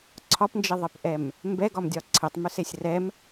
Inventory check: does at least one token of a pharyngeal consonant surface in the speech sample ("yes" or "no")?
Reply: no